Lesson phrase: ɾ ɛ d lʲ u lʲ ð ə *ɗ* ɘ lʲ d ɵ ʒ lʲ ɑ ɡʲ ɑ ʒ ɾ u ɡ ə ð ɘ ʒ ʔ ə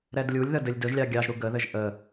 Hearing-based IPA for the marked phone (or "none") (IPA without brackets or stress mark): d